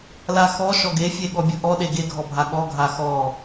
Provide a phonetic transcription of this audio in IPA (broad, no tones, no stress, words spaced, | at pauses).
laxɔ ʃɔɡefʲe ɠɔbʲɯʔɔɗe ɡeɡʱɔbʱa ɠɔɡʱa xɔ